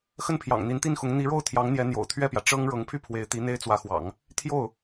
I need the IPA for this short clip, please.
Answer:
x ə˥˩ n pʰ j ɑ̰˨˩ ŋ n̪ i˧˥ n t̪ i˥˩ n x ʊ˧˥ ŋ n̪ i˧˥ ɻ o˥˩ ʊ̯ t̪ʰ j ɑ˧˥ ŋ n̪ j ɛ˧˥ n̪ j o̰˨˩ ʊ̯ t̪ʰ ɥ ɛ˥˩ p j ä˩ ʈ͡ʂ ɤ˥ ŋ ɻ ɤ˧˥ ŋ pʰ y˥˩ pʰ w e˧˥ ɪ̯ t̪ i˧˥ n̪ e˥ ɪ̯ t͡s w ä˧˥ x w ɑ̰˨˩˦ ŋ | t̪ʰ j o˥˩ ʊ̯

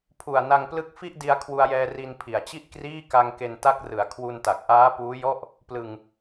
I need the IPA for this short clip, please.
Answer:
pʰ u˨˩ a̯ n a˧ ŋ p l ɯ˦˥ k̚ f i˥˩ ʔ d i˧ a̯ kʰ w u˧ a̯ j ɛː˧ r i˧ n pʰ i˨˩ a̯ t͡ɕ i˥˩ ʔ k r iː˥˩ k a˧ ŋ k e˧ n t a˦˥ k̚ r ɯ˩˦ a̯ kʰ w u˧ n t a˨˩ k̚ ʔ aː˦˥ p uː˦˥ j ɔ˥˩ ʔ | p l ɯ˧ ŋ

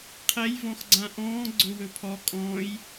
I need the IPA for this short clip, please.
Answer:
qʰ ɛ j v ɔ̃ x ɡ͡ǀ ã ʔ ɔ̃ː ɡ͡ǀ ɵ w ɵ pʰ ɔ kʼ ɔ̃ː j

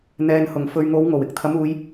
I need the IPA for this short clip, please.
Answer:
n̪ ɛː˨ n h ʊ˨˩ ŋ f ɵ˨ ɥ ŋ o˨˧ w ŋ o˨˩ w ɪ˧ k̚ t̪ʰ ɐ˨˥ m uː˨˧ j

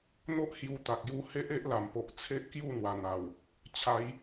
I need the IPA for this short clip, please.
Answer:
n̪ o˦ ʔ h j u˧ t̪ a˨ k̚ j u˧ h e˦ ʔ e˦ ʔ l a˨˩ m p o˨ ʔ t͡sʰ e˦ ʔ k j u˥˧ n̪ w a˨˩ n̪ a˨˩ w | t͡ɕʰ a˨˦ j

